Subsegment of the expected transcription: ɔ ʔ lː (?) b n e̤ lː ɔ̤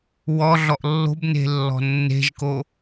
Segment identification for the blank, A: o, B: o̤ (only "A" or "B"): B